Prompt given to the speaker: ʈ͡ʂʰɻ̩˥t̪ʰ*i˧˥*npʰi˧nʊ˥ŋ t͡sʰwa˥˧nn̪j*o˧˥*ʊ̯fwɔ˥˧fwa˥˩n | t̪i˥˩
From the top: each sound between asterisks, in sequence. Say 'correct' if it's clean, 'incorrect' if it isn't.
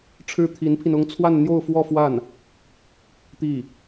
correct, incorrect

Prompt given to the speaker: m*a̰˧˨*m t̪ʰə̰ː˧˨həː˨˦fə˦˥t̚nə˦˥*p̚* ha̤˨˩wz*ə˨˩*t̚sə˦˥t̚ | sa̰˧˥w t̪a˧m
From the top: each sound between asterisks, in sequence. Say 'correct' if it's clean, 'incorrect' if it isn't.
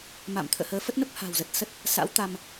correct, correct, correct

